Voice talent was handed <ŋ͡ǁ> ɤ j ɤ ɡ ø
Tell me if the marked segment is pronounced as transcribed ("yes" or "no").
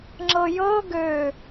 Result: yes